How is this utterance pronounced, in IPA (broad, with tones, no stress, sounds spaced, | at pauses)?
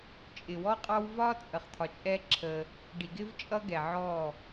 t͡ʃʼ ɪ˨ w ɔ˦ qʼ ɑ˦ w v ɒ˦ t͡sʼ ə˨ χ t̪ʰ ɒ˨ t͡ʃʼ ɛ˦ ǁʰ ə˦ | ɖ i˨ ɡ ɪ˦ v t͡ʃʼ ʌ˦ ɡ ɛ˨ ʕ ɔ˦˨